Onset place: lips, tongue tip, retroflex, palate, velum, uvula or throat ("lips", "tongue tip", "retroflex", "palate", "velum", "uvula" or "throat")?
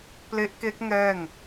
lips